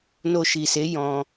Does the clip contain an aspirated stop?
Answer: no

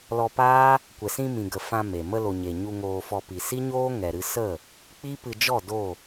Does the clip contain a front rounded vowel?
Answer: no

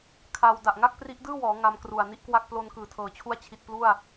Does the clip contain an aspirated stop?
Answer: yes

